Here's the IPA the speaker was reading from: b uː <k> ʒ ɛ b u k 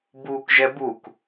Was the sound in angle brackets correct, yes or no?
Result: yes